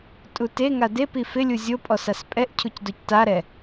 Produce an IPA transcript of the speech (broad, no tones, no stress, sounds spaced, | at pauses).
tʼ u t e ŋ a d e p i f ɪ lʲ u zʲ o pʼ ɔ s a s pʼ ɛ ʔ cʰ u c d o c t a ɾ ɛ